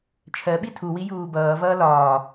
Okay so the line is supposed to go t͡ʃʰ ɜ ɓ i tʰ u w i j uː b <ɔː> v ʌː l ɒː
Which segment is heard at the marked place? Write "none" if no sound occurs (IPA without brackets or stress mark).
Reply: ʌː